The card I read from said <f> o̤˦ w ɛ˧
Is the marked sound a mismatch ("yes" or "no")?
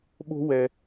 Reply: yes